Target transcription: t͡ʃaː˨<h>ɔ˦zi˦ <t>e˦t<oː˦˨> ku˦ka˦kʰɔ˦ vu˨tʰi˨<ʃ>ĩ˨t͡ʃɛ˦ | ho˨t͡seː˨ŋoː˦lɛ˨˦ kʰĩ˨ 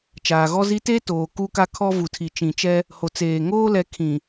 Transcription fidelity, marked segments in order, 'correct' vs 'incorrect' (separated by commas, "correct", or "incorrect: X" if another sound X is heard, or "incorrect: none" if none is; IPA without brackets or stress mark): incorrect: ɣ, correct, incorrect: oː˨, incorrect: t͡ʃ